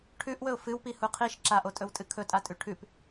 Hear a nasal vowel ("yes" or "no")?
no